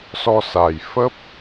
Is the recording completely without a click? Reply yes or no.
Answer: yes